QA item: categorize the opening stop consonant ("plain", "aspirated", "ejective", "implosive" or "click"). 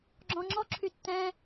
click